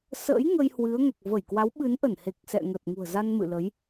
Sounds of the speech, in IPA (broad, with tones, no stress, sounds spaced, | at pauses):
s ə̰˧˥ j ŋ ə˧ j h w ɨ˨˦ ə̯ ŋ ɛ˨˩ k̚ v ə˧˩ j k w a˨˦ w ɓ ɨ˨˦ n ʔ ə˧˩ n h e˨˩ k̚ s ɛ̰˧˨ ŋ ə˨˩ t̚ ŋ ṳ˨˩ ə̯ z a˧ n m ɨ̰˧˨ l ə˨˦ j